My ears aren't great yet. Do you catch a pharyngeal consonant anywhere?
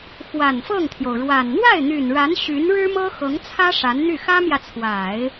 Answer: no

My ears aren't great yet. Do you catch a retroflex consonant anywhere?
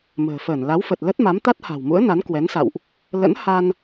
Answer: no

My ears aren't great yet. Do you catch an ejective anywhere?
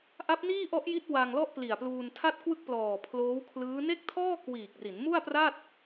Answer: no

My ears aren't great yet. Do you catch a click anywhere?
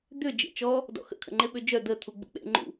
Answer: yes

